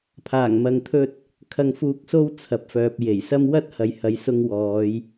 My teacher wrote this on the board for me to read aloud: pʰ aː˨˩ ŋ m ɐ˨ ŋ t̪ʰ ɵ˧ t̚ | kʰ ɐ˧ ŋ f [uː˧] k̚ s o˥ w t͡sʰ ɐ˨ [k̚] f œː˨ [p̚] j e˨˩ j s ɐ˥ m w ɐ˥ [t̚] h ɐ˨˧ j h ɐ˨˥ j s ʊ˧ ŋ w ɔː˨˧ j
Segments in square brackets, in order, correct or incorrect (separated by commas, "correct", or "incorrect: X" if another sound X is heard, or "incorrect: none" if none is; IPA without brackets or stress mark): correct, incorrect: p̚, correct, correct